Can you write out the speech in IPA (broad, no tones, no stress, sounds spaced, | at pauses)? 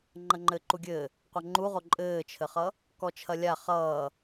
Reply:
ŋ͡ǃ ɐ ŋ͡ǃ ɘː ǃ u ɡʲ ɘː | qʷ ɐ ŋ͡ǃ u ʁ o ǃʼ ɘː t͡ʃʰ ɘ χ ʌ | k ɔ t͡ʃʰ ɐ lʲ a χ ʌː